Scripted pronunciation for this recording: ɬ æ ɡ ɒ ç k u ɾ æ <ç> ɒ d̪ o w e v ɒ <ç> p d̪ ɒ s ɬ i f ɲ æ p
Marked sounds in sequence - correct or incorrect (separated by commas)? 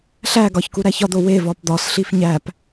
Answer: correct, incorrect